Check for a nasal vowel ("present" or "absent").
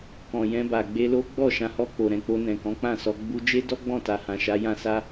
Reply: present